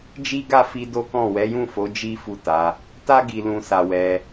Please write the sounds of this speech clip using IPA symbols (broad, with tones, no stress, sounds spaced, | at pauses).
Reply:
d͡ʒ i˦ ɡ a˦˨ f i˧ d o˦ k ɔ̃˦˨ w ɛ˨˦ j ũ˦˨ f o˨˦ d͡ʒ i˦ f u˦˨ t a˨˦ | t a˦ ɡ i˧ l ũ˧ s a˧ w ɛ˧